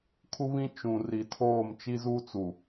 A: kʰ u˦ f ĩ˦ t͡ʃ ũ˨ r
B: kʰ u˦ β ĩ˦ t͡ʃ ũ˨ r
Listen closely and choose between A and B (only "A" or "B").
B